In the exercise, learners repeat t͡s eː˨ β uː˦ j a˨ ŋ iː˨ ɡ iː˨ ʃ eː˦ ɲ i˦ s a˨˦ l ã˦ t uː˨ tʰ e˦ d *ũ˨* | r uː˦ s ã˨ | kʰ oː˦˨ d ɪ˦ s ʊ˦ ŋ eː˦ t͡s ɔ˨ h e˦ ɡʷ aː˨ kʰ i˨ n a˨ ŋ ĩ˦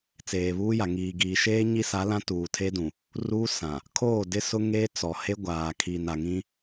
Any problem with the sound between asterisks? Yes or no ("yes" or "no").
no